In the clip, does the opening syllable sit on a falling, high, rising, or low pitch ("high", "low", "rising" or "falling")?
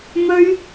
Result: high